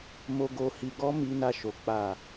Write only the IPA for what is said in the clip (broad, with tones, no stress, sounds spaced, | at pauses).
m o˨ ɡ o˨ h i˨ ɡ ɔ˧ m i˨ n a˨ ʃ o˨ k͡p a˨